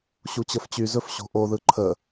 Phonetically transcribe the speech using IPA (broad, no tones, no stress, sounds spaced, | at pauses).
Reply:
ɕ u t͡ɕ ə f t͡ɕ y z ɵ f ɕ o̤ ʔ o ð ɯ ǃʰ ə